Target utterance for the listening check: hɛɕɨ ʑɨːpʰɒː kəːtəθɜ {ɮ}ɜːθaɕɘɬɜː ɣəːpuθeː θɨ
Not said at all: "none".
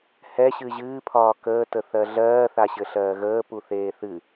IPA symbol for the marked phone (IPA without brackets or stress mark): ɮ